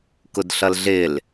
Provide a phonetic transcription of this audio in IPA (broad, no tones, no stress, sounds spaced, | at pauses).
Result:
k ʊ d ɬ ʌ l ɮ ɪ l